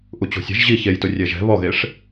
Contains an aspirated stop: no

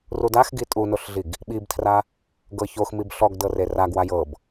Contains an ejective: yes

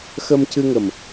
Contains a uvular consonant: no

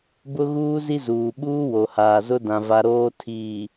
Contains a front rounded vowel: no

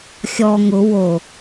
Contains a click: no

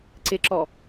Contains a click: yes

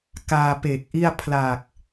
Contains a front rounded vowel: no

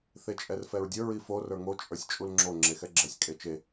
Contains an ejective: yes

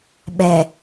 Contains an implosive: yes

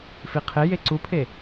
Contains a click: yes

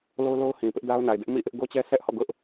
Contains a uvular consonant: no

